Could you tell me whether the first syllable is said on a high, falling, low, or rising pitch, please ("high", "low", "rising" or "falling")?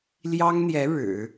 high